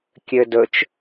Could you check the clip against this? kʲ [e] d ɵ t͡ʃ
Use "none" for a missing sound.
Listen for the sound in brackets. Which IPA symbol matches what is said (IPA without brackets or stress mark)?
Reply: ø